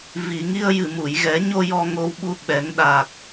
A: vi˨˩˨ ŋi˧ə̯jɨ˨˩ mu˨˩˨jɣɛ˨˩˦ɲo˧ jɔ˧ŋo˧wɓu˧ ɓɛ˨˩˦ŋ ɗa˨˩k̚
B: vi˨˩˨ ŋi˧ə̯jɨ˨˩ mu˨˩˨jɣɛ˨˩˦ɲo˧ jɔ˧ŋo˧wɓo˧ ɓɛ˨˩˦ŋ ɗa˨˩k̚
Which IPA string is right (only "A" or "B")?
A